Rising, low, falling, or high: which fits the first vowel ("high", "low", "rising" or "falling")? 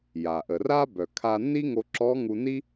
low